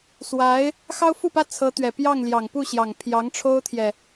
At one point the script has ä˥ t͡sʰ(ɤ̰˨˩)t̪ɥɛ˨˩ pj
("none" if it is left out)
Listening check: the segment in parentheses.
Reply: ɤ˧˥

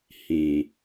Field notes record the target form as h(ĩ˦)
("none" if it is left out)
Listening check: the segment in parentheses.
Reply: ĩ˨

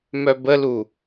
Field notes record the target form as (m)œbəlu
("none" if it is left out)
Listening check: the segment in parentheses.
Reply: m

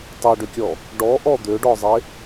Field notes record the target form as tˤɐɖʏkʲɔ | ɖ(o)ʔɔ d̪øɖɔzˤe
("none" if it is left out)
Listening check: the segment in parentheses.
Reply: ɔ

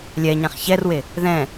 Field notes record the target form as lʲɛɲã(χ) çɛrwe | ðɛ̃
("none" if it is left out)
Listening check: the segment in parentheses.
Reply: χ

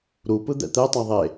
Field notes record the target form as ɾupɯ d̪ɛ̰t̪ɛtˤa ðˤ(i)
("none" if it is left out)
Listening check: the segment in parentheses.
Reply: e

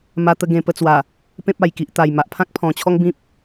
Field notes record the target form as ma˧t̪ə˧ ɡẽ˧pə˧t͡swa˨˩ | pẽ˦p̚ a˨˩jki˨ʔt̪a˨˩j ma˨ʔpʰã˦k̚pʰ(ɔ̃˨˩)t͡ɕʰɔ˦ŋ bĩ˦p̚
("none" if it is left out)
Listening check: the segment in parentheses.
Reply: ɔ̃˨˩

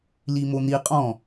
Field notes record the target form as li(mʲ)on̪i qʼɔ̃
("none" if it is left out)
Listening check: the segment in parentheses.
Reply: m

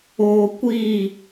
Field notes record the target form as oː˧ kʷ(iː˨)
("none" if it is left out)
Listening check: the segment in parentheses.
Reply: iː˦˨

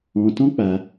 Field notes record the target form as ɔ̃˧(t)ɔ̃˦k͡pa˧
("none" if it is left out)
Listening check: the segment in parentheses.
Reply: t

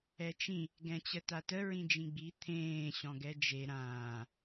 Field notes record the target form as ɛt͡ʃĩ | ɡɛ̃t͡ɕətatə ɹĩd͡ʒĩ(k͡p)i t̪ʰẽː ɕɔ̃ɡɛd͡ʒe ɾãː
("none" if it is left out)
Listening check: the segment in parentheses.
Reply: ɡ͡b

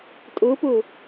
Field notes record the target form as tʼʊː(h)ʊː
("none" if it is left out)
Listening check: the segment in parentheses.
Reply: p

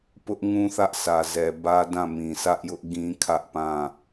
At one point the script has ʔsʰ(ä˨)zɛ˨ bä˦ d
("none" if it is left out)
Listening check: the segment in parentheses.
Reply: ä˨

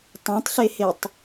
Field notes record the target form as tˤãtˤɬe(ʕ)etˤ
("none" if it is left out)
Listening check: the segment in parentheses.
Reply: h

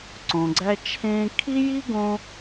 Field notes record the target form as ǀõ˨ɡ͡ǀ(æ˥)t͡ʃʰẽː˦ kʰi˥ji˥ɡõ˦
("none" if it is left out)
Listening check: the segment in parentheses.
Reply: æ˦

